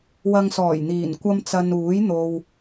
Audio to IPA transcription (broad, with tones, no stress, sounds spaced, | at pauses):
w ɐ˧ ŋ s ɔː˨˩ j n̪ iː˨˩ n kʷ ɐ˥ m t͡s ɐ˧ n uː˨˥ j n̪ o˨ w